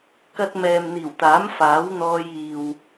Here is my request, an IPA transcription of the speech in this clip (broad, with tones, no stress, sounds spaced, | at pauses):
k ɐ˧ t̚ m ɛː˨ m n̪ iː˨˩ w t̪ aː˨˥ m f aː˨˥ w n̪ ɔː˧ j iː˨ w